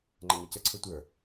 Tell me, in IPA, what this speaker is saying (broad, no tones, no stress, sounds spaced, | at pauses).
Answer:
ŋ͡ǃ ɛ ɲ ɜ c ə ǀʰ ɯ tʷ ə˞